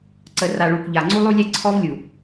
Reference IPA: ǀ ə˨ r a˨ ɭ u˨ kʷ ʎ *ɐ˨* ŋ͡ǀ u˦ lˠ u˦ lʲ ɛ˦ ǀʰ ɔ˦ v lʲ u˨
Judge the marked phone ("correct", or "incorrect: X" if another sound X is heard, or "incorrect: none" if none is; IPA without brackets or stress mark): incorrect: a˨